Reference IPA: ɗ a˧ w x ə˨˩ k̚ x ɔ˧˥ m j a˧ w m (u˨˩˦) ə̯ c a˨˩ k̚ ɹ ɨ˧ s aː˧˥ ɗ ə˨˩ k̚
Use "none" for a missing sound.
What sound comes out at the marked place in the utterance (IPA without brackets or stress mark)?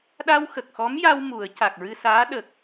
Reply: u˨˩˦